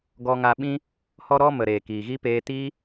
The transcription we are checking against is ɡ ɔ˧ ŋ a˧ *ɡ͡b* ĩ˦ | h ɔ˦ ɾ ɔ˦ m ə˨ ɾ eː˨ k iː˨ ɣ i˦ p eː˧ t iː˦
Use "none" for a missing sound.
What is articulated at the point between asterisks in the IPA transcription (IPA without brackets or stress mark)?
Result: ɓ